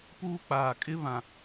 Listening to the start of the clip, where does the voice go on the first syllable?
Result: high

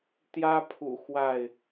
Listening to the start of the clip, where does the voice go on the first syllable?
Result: high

